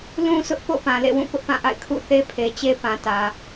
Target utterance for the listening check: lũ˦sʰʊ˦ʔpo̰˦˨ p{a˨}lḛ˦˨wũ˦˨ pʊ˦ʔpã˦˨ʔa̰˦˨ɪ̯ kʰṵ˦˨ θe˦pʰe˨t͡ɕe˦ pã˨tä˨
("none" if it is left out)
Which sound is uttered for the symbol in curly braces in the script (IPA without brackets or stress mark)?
ã˨